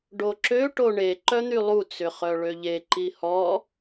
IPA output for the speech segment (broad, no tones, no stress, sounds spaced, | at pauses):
ɖ o ǁ ø ʈ o ɳ e ǃ œ n̪ y lˠ u t͡s ʏ χ œ ɭ ø ʎ e ǃ i h ɔ